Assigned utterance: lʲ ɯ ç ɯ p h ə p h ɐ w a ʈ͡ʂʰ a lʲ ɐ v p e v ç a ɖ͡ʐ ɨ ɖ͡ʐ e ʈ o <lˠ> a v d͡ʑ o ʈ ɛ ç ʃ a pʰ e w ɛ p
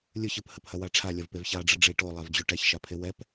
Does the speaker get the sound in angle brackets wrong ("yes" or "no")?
no